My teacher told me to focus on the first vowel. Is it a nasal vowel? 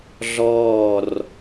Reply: no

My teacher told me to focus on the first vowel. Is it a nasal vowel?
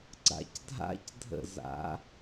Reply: no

